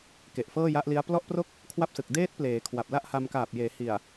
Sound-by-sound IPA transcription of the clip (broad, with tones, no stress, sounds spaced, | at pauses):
k e˨˩ ʔ f ɤː˥˩ j a˦˥ ʔ l i˦˥ a̯ p l ɔ˥˩ ʔ p r o˥˩ k̚ | kʰ w a˥˩ p̚ s ɯ˨˩ k̚ d eː˦˥ t̚ p l eː˩˦ kʰ w a˨˩ p̚ l a˥˩ ʔ h a˧ m k aː˨˩ p̚ j eː˩˦ h i˨˩ a̯